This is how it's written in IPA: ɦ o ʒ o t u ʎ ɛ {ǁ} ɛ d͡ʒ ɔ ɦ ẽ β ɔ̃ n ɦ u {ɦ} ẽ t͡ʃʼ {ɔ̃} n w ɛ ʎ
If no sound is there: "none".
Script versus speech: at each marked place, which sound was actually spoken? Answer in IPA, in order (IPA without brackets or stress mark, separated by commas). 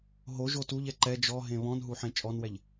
ǃ, ħ, ɔ